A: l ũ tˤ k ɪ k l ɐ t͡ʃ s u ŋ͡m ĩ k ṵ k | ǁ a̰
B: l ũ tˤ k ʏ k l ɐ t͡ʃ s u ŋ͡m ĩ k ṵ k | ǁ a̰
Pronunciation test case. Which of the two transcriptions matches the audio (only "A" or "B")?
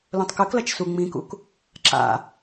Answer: B